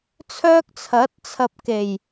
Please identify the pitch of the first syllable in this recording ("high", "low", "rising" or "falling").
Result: high